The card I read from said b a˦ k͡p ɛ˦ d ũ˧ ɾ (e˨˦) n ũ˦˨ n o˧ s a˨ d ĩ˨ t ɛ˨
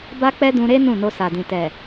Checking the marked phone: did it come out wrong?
yes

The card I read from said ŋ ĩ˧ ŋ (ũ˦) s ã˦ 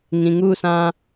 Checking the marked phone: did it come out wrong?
yes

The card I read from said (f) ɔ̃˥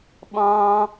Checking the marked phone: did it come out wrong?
yes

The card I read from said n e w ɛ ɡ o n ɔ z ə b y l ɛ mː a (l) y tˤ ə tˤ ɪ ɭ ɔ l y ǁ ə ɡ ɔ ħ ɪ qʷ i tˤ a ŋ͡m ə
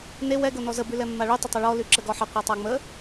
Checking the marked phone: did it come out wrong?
yes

